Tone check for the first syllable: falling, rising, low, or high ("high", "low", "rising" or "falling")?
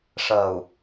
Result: low